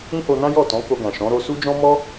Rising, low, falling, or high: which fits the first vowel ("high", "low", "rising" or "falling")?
high